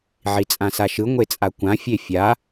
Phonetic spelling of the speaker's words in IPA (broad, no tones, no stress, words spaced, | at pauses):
ʕit͡sʼãsaʃɯ ŋʷet͡sʼakʷã fʲefʲa